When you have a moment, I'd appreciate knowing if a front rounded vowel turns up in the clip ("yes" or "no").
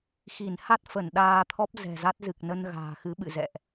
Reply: no